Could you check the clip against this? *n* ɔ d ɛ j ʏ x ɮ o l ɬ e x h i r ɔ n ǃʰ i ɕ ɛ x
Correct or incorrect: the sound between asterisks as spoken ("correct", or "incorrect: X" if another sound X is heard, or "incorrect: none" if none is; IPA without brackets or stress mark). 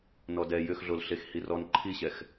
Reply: correct